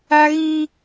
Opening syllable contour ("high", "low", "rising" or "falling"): high